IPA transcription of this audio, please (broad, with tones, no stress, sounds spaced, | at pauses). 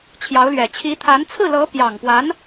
t͡ɕʰ j ɑ˧˥ ʊ̯ l ɥ ɛ˨˩ t͡ɕʰ i˧˥ t̪ʰ a˧˥ n t͡sʰ ɹ̩˥˩ l ɤ˧˥ p j ɑ˨˩ ŋ p w a˧˥ n